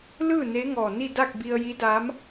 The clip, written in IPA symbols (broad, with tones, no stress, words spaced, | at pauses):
lɯː˥˨ne˧˥ ŋɔː˧˩ ni˥˨da˥˨k̚ bi˧ə̯ji˧˥daː˧˥m